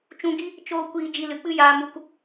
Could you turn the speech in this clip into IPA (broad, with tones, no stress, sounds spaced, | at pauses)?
t͡ʃ ũ˧ ɡ i˦ | t͡ʃ oː˦ kʷ iː˧ d͡ʒ i˧ l ɨ˨ k͡p ɨ˦ j aː˧ m u˧ k